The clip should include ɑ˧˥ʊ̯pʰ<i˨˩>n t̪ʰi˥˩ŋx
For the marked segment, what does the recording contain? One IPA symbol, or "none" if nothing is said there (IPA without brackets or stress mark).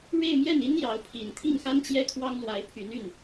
i˨˩